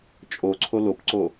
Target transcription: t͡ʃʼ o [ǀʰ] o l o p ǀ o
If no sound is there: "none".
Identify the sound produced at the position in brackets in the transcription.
ǀʰ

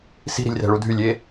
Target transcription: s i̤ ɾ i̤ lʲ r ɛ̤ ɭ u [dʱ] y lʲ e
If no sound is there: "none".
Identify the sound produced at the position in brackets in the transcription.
dʱ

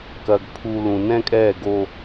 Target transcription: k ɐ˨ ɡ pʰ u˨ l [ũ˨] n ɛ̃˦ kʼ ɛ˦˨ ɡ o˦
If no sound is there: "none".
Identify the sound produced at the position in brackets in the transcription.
ũ˨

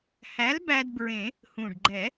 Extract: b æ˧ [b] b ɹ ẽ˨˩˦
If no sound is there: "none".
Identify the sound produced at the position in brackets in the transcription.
d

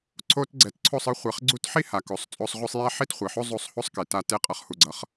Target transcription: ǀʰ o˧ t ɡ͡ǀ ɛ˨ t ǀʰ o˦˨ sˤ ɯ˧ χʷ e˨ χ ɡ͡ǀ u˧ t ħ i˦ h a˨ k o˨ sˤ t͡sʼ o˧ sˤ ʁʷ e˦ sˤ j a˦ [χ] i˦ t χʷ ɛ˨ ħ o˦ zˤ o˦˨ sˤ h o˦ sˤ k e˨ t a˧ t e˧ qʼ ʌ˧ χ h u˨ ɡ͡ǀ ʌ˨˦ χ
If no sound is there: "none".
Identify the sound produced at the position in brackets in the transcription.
ħ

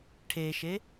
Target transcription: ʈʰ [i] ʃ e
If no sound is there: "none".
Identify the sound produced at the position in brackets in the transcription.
e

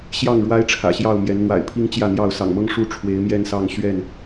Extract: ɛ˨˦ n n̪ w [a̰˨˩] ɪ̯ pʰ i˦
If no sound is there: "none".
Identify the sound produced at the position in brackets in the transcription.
a̰˨˩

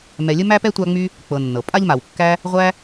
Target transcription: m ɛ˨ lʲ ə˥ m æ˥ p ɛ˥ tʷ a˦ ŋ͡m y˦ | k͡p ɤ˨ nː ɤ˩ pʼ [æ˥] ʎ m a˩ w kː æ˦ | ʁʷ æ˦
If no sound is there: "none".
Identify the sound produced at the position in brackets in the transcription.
a˥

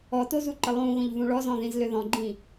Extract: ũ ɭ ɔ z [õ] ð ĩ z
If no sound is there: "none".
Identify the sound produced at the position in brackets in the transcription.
ɔ̃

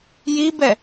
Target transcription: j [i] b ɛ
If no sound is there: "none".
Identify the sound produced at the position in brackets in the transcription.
i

